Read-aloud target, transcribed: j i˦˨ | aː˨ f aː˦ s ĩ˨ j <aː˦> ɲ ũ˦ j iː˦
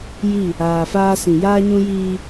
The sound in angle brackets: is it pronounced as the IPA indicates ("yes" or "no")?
yes